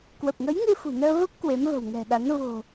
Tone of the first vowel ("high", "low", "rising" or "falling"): low